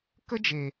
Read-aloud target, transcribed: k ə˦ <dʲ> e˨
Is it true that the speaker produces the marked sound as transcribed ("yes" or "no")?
no